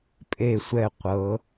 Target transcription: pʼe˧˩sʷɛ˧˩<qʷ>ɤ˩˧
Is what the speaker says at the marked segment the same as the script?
yes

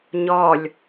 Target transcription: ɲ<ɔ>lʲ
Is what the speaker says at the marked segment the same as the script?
yes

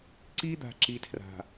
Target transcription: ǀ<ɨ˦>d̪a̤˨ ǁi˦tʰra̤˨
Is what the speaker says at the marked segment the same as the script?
no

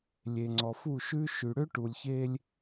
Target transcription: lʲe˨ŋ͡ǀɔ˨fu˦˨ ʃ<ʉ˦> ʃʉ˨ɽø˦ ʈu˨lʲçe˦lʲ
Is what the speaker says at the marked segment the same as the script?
yes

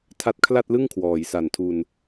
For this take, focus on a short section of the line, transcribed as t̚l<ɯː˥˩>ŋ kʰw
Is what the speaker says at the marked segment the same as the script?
no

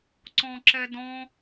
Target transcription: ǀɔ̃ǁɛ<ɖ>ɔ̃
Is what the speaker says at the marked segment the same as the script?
no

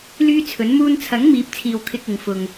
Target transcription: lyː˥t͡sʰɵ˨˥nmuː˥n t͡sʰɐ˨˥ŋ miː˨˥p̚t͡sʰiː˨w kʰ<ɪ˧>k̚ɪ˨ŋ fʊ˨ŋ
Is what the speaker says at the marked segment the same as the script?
yes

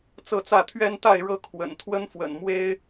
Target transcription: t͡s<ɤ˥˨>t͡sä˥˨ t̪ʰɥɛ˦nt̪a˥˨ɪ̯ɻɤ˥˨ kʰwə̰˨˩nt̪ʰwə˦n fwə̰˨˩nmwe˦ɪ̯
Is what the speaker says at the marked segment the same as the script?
yes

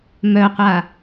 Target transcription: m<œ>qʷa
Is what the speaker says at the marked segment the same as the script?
yes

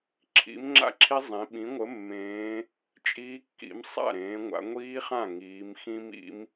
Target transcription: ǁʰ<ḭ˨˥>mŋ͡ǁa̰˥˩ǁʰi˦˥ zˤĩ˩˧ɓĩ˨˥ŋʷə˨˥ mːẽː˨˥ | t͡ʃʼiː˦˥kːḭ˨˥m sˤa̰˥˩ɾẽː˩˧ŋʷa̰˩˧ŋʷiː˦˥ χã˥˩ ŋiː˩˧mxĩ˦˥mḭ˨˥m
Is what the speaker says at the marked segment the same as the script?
yes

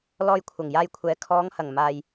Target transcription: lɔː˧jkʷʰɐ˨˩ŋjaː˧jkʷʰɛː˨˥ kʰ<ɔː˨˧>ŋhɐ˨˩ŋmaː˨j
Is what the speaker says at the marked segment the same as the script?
yes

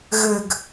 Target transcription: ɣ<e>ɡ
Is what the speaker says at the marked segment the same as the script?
no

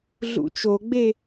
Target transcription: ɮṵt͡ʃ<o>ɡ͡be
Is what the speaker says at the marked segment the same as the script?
yes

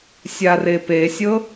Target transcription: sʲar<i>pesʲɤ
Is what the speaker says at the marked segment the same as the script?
no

